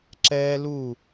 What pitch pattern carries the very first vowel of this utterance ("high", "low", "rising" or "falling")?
high